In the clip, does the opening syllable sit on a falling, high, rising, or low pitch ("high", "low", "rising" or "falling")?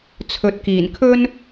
low